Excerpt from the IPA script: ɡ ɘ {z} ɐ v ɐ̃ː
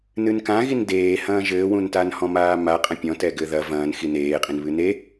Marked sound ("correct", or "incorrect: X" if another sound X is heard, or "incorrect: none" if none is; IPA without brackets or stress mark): incorrect: ð